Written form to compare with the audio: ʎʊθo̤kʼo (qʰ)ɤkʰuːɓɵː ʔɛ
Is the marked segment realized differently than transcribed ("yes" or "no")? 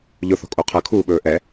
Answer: no